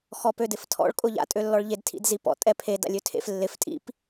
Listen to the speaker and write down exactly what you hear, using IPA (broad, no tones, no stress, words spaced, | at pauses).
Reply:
xɔpødɪftʰɔ̰ɭ kʼʊʎa̰ tʼølːɔɭʎed tʰḭdzipɔ̰ tʼɛpʰe da̰lʲøtʰḛf lːɪf tʼḭp